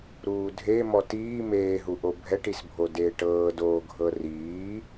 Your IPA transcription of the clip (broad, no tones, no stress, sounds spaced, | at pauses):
ɾ uː dʱ e m ɔ t iː m eː ɦ u ʔ o bʱ ɛ ʈ i s bʱ o d eː ʈ ɤː d oː ɡʱ ɤ r iː